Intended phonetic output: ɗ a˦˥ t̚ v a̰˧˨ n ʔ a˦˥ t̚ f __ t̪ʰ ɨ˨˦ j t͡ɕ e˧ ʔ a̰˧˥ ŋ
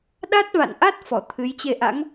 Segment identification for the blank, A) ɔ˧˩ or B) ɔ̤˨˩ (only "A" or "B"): A